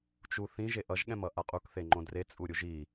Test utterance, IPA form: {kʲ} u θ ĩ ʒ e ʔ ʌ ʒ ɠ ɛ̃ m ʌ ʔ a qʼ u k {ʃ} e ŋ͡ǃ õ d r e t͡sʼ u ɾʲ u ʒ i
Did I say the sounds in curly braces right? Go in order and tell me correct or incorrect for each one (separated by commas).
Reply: incorrect, incorrect